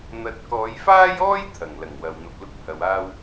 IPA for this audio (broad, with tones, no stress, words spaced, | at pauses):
n̪ɐ˨t̚kɔː˨˧jfaː˥jɔː˥j t̪ʰɐ˨˩ŋ lɐ˨˩ŋwɐ˨wn̪ɐ˧p̚ lʊ˥k̚hɐ˨˧waː˥w